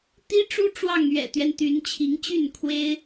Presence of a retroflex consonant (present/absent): present